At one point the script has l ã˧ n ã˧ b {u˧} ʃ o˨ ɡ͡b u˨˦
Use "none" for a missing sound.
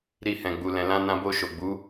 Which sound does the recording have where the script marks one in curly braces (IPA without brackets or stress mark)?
o˧